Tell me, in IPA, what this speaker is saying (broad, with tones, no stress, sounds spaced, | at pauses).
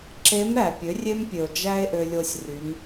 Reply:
ǁ e˧˥ m ɾ æ˩ pʲ ø˩˧ rʲ e˧ m pʲ ø˩ o̯ d͡ʒ æ˥ e̯ ʔ ø˧ lʲ o˧ sʲ r y˩˧ m